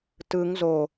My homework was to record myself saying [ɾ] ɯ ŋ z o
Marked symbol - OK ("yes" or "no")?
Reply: no